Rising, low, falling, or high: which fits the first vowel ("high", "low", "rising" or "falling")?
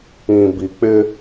low